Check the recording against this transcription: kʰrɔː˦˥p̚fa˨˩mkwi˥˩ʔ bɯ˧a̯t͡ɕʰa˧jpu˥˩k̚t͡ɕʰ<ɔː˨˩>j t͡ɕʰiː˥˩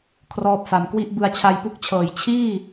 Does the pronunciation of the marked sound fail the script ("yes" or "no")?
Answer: yes